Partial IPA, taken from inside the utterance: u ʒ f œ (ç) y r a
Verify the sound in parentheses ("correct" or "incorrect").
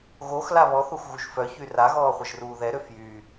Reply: correct